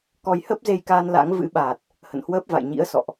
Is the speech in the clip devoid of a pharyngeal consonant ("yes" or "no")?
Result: yes